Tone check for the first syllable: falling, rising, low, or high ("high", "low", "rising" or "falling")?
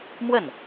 falling